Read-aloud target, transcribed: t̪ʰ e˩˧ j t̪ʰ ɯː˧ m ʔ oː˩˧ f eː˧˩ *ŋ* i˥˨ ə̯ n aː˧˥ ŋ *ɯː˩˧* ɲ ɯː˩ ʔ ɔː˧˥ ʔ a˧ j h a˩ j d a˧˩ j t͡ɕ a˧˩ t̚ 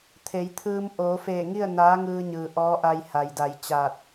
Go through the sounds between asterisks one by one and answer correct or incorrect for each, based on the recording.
correct, incorrect

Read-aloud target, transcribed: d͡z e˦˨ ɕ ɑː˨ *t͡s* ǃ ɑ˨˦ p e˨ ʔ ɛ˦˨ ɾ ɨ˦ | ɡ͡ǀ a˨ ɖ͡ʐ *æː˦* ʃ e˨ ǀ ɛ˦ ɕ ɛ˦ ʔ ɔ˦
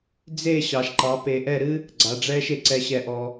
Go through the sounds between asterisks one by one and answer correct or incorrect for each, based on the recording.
incorrect, incorrect

